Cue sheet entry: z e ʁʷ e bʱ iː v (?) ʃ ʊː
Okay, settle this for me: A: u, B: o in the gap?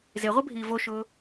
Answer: B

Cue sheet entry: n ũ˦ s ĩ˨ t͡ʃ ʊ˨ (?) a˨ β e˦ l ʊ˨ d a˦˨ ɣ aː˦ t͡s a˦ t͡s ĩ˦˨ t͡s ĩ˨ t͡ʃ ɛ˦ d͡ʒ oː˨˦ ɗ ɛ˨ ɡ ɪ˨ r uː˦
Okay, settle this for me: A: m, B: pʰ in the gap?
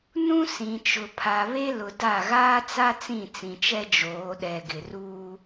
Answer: B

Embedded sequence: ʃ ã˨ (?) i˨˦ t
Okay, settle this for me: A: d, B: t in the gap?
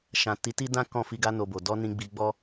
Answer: B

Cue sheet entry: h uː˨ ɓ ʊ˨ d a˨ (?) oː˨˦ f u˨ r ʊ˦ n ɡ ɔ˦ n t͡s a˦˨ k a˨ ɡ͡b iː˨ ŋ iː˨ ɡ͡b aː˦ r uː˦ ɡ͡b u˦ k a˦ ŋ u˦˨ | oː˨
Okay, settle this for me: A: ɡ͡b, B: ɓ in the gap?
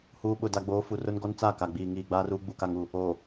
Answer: A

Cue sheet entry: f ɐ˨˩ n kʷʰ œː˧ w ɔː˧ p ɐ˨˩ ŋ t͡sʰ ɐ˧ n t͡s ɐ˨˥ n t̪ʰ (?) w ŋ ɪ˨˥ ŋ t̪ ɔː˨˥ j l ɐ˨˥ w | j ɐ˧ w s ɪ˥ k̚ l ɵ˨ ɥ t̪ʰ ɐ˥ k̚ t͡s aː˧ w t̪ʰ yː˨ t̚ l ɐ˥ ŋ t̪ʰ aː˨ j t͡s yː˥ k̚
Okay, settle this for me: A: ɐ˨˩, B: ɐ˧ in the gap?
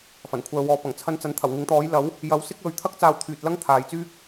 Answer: A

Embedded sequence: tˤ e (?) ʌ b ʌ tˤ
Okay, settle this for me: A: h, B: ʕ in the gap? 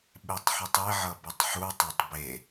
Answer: B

